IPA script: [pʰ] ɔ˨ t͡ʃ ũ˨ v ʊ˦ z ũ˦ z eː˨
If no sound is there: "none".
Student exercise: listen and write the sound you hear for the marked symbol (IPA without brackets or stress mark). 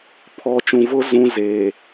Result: pʰ